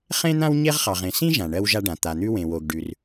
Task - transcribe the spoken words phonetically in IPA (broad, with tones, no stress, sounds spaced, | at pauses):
χ ẽ˥ n̪ ã˥ w ɲ e˥ ʁ χ ɑ˩ ʁ ẽ˩ s ĩ˥ ʒ ã˩ ɳ ɜ˥ w ʒ a˥ ɖ ã˩ t̪ a˩ n̪ ʉ˥ w ẽ˩ w o˩ ɡ ɖ ʉ˩ r